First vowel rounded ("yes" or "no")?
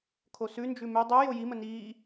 yes